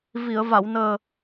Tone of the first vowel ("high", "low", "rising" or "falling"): low